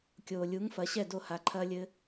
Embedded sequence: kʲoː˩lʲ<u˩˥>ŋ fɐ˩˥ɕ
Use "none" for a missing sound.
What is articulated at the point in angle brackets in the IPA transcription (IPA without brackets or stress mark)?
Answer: u˩˥